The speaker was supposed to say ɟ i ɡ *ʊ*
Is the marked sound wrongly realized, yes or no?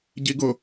no